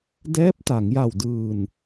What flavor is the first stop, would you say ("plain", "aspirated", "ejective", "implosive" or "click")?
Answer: plain